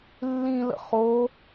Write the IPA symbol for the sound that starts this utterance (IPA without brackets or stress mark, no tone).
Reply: lː